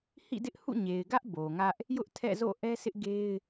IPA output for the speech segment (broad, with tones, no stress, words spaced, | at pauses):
hḭ˦˨dɪ˦ʔ hṵ˦˨ ɲe˨ɪ̯ɡä˦ʔ bo˨ŋä˦ʔ | jʊ˦ʔtʰɛ̰˦˨zo̰˦˨ ʔɛ˦sɪ˦ʔ ɡe˦ɪ̯